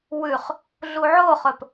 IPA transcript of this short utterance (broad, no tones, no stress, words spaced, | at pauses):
wʉχ | ɮuʕoχɵp